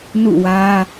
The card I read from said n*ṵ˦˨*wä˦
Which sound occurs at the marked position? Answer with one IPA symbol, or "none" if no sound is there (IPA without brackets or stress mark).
ṵ˦˨